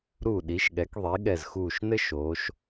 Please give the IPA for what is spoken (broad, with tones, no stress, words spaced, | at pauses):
ɾu˧˩ɗi˩˧ʃɠɛ˩˧kðˤi˩˧ ɠɛ˧˩zxuː˧˩ʃnɘ˥ ʃoː˩˧ʃ